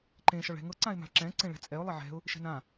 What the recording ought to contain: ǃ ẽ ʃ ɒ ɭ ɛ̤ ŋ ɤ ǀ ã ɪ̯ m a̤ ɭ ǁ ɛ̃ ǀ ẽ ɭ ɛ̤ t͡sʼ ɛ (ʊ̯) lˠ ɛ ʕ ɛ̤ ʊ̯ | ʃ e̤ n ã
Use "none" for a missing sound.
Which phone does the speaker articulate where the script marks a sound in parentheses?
ʊ̯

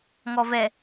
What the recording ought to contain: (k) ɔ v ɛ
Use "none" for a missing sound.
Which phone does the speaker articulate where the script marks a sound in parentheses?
ŋ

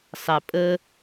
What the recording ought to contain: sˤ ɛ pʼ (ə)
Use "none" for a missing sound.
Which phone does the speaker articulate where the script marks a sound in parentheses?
ə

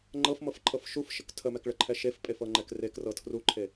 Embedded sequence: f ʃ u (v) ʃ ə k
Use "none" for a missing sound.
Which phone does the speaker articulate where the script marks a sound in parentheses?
f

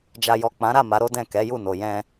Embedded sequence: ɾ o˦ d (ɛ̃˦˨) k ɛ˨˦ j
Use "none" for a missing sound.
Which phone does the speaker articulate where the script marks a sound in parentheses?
ɛ̃˦˨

